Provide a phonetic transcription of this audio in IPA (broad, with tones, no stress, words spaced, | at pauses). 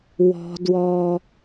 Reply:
wɔ̤˨ dwɔ˨